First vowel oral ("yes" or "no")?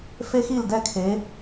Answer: yes